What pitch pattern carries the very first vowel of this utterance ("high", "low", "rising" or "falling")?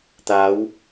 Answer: rising